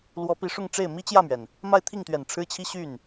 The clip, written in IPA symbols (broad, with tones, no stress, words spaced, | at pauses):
lwɔ˧˥pi˧˥ʂʊ˥˧ŋʈ͡ʂe˥˩ɪ̯ mi˥t͡ɕjä˥˩mɥɛ˩n | ma˥˧ɪ̯t̪ʰi˥˩ŋt̪ɥɛ˨˩n ʈ͡ʂʰɻ̩˥t͡ɕʰi˥ ɕy˥˩n